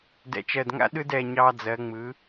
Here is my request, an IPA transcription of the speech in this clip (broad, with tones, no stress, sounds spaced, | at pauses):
d ɛ̰˧˩ t͡ʃ ɜ˧˩ d ŋ a̰˦ ɗ ɯ˦ d ɛ˧˩ ɲ ɑ˦ d͡z ɜ˩˥ ŋ͡m ɯ˩˥